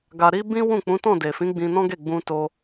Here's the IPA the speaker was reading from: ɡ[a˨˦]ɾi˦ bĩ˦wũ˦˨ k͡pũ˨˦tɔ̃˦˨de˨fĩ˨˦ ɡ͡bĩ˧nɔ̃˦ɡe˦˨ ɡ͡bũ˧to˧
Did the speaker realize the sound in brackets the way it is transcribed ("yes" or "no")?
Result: no